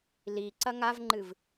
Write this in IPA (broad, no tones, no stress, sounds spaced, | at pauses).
l i ǀ ɐ ŋ a v ŋ͡ǃ ɨ v